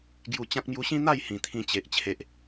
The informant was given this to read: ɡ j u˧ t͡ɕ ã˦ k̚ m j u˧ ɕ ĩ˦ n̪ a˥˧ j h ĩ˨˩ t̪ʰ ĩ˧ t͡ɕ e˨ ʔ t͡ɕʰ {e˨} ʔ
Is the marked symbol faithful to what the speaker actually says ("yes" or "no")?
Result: yes